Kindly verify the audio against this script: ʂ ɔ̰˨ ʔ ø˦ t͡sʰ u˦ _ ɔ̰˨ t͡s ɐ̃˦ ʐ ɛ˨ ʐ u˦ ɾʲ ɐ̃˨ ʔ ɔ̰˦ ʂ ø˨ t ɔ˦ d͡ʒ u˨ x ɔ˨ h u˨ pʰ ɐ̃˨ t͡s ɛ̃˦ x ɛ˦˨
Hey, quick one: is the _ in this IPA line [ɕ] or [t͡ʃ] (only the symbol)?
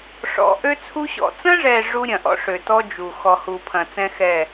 ɕ